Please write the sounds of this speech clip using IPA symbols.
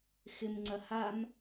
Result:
x ɪ m ŋ͡ǀ ɐ h a m

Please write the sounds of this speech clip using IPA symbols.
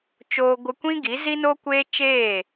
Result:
t͡ʃ oː˧ ɡʷ ɨ˧ kʷ ĩ˦ ɡ i˨˦ z i˦ n o˦ kʷ eː˦ t͡ʃ eː˦˨

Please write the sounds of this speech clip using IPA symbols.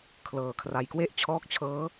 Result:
kʰ l ɤː˨˩ kʰ r a˨˩ j k w e˥˩ ʔ t͡ɕʰ ɔː˦˥ k̚ t͡ɕʰ ɤː˦˥

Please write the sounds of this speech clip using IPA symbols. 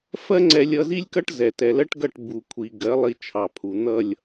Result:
f ɜ˦ ŋ͡ǀ ɛ˧ lʲ ʌ˧ z i˦ lʲ k ʌ˦ ʈ z ɛ˨ t ɛ˨ l ɜ˦ ʈ ɡ ʌ˦˨ ʈ b u˨ kʷʰ i˨ ɡ ɜ˨˦ lˠ i˧ t͡ʃʰ ɑ˨ pʰ u˨ n̪ ʌ˦˨ lʲ

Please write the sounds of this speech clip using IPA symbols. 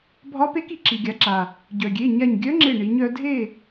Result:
bʱ ɒ˧˥ p e˧˥ k i˩ ǁ i˩ ɡʲ a˩˧ ǁ a˩ | ɟ œ˩ ɡʲ e˩˧˩ ɲ a˧˩ ɲ ɡʲ œ˧˥ ŋ͡ǁ e˧˩ ɳ i˩˧ ɲ œ˩˧ dʱ e˥˨

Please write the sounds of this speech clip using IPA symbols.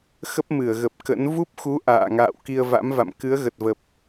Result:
x ə˦˥ p̚ m ɨ˧˩ ə̯ ɣ ə˨˩ p̚ k ə̰˧˥ n v u˦˥ p̚ x u˨˦ ʔ a̰ː˧˨ ŋ a̰ː˧˨ w k i˧ ə̯ v a̰˧˥ m v a̰˧˨ m k ɨ˨˦ ə̯ ɣ ə˨˩ t̚ v ə˨˩ p̚

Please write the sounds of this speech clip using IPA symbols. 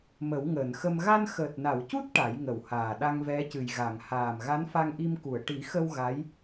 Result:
m ə˨˩˦ w ŋ əː˨˩˨ n x ə˧ m ɣ a˧ n x əː˨˩ t̚ n a˨˩˨ w c u˦˥ t̚ ʈ a˨˩˦ j ŋ ə˨˩ w h aː˨˩ ɗ a˧ ŋ v ɛ˧˥ c ɨ˨˩ j ɣ a˨˩˨ ŋ h aː˨˩ m ɣ a˧˥ n f a˧ ŋ ʔ i˧ m k u˨˩˨ ə̯ ʈ i˨˩˦ x ə˧ w ɣ a˧˥ j

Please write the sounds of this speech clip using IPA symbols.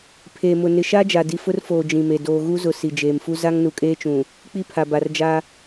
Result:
pʰ eː˨ m ʊ˨ n ɪ˨ ʃ a˦ d͡ʒ a˨ d i˨ f ʊ˦ r f oː˨ d͡ʒ ĩ˨ m e˨ d oː˨ ɣ u˦ z ʊ˨ s i˨ d͡ʒ eː˨ m f u˦ z a˦ ŋ n u˨ kʼ eː˦ t͡ʃ ũ˨ | k͡p i˦ pʰ a˨ b a˨ r d͡ʒ a˦

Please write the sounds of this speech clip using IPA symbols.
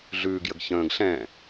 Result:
ɮ ʉː ɡ j ə ɡ ç ə̃ː ɡ ɬ ɛ̃

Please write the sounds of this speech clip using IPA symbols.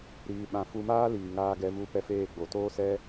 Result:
ɾ iː˧ ɓ ã˧ f u˧ m aː˦ l iː˨ ŋ aː˧ ɡ ɛ˧ v u˧ p ɛ˧ f eː˦˨ ɡ͡b o˨ t oː˦ s ɛ˦

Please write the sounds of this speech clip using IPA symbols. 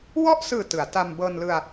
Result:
w ɔ˥˩ ʔ s ɯː˨˩ t ɯ˩˦ a̯ t a˧ m b ɤː˧ n l ɯ˧ a̯

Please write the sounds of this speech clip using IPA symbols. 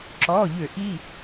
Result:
ǁ ɔ˩˧˩ ʎ ø˧˩˧ ʔ i˩˧˩

